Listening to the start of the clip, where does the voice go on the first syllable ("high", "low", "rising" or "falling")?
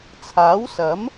rising